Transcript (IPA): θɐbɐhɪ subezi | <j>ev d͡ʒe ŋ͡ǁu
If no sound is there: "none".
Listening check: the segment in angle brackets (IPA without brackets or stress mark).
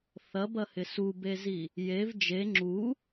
j